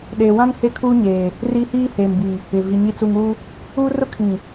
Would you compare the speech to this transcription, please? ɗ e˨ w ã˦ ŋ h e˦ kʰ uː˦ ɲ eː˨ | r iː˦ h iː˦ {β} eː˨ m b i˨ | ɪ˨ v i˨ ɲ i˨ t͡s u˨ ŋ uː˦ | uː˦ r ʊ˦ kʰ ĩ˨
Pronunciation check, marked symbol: incorrect: h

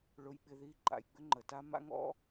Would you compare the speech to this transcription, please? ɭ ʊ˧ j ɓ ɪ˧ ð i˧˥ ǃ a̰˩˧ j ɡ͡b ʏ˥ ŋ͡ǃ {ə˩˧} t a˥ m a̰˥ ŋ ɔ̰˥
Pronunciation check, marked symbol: correct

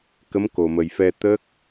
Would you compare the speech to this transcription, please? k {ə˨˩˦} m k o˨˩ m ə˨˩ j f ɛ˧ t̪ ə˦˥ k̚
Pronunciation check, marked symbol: incorrect: ə˧˥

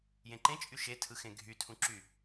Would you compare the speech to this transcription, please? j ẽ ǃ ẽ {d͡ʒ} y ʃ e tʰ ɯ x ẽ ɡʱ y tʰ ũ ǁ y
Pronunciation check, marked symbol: incorrect: t͡ʃʼ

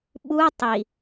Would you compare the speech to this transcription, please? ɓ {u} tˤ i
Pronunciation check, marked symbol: correct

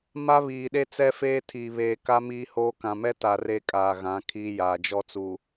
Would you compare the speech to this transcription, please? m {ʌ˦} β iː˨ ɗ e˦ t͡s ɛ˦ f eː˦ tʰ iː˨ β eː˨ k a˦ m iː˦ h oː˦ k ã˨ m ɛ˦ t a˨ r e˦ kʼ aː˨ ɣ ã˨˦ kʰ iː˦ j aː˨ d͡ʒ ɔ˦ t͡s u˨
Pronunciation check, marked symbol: incorrect: a˦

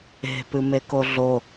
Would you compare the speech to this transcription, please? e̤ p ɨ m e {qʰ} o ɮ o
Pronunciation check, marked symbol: incorrect: k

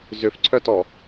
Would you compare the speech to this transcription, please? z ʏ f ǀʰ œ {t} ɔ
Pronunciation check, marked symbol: correct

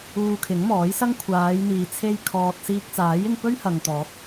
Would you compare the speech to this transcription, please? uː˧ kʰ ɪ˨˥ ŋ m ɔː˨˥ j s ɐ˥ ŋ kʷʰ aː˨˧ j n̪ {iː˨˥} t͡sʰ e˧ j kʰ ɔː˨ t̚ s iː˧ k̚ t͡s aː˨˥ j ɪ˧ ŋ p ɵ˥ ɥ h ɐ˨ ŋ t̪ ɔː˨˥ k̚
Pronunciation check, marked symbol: incorrect: iː˨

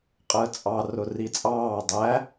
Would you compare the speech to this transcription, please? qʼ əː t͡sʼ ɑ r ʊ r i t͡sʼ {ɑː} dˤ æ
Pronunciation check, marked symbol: correct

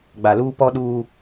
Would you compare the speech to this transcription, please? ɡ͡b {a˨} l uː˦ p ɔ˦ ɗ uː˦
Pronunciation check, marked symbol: correct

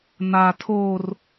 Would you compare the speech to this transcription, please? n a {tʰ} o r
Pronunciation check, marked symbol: correct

